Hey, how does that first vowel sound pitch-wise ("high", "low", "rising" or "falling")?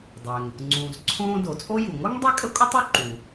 low